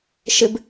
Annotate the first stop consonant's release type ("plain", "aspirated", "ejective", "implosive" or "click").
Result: plain